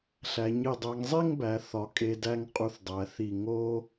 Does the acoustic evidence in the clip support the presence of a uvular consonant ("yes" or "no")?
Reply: yes